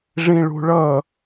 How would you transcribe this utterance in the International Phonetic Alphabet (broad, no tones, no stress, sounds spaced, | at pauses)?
ʐ ĩ ɭ ṳ ɭ ʌ